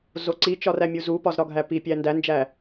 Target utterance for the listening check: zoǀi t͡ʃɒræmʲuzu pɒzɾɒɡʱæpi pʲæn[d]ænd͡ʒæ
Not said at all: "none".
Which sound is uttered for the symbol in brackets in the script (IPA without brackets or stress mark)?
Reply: d